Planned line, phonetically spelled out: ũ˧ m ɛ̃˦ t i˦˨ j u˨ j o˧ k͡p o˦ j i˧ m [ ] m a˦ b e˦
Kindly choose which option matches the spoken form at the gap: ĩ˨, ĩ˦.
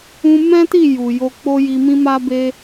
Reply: ĩ˦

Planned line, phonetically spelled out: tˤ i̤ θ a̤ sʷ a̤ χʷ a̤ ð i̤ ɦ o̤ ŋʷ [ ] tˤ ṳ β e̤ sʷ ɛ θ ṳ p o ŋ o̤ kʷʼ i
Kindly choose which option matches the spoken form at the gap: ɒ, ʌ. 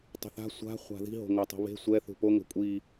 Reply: ʌ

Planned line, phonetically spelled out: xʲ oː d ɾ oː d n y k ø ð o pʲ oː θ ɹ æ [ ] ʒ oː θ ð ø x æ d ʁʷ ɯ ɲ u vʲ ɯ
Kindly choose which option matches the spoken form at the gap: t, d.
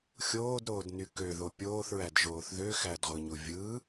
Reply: d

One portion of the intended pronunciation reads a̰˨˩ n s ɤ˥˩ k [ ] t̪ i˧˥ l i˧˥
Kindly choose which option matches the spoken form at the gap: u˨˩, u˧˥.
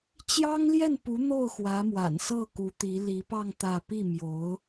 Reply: u˧˥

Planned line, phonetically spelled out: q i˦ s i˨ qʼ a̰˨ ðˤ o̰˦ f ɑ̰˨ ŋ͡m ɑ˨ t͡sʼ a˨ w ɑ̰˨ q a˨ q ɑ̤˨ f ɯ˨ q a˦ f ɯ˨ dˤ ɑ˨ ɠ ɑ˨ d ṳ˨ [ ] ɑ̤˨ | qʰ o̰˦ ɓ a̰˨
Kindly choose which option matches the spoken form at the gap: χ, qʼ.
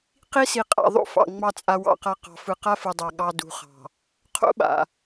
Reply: χ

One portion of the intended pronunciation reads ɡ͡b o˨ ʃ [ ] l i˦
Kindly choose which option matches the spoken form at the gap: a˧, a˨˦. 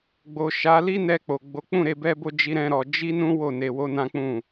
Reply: a˨˦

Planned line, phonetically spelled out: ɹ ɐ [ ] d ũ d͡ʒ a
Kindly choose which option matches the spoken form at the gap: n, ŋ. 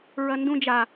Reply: n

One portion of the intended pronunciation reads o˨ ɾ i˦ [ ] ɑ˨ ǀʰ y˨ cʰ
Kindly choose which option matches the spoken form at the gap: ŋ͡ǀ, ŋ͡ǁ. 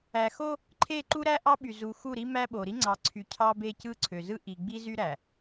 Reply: ŋ͡ǀ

